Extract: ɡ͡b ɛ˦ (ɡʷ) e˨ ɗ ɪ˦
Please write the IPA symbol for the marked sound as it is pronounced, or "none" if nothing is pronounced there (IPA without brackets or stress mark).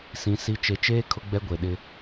ɡʷ